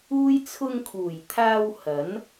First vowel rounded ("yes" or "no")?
yes